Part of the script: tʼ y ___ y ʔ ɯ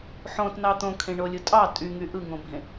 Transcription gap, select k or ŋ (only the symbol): ŋ